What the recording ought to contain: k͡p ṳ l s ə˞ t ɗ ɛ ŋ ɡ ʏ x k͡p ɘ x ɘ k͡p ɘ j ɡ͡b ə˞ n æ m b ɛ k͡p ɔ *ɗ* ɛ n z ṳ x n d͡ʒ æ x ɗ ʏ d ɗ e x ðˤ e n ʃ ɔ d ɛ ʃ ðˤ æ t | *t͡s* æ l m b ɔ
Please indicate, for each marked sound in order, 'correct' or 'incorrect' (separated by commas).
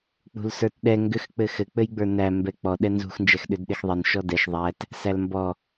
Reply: correct, incorrect